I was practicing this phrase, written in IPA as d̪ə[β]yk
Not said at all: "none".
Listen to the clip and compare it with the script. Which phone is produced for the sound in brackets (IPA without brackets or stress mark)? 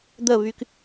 β